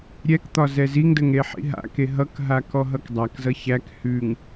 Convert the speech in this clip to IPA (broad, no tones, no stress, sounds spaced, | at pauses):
ɾʲ ɛ k t̪ ɒ z ɛ z i ŋ d ə ŋ ɾ e ħ ḭ ɦ a̰ k e ɦ ʌ k ɦ a k ɔ ɦ ʌ k dˤ a k z ʌ ç æ k h ʉ ŋ